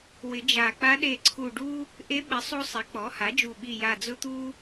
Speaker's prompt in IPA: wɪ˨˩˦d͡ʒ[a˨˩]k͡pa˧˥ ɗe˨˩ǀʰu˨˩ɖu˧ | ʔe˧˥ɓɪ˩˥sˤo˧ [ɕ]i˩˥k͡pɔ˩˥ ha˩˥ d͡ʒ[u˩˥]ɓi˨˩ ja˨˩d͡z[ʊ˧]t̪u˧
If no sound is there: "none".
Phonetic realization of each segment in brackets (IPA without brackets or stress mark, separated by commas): a˨˩, sˤ, u˨˩, ʊ˧